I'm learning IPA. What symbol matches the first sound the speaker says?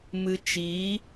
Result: m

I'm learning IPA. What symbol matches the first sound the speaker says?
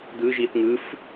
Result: d̪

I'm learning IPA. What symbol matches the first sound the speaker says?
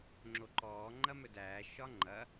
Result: ŋ͡ǁ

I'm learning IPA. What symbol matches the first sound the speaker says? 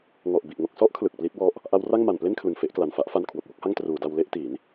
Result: ŋ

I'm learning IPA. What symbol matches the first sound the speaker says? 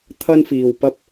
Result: t̪ʰ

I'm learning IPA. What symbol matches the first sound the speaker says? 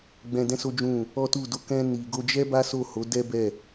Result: ɡ͡b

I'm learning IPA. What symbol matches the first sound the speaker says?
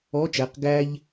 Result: ɔ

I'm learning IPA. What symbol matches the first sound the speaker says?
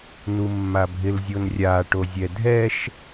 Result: n̪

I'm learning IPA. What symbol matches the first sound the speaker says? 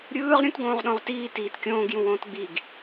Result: ɾʲ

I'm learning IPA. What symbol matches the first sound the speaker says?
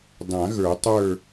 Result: dˤ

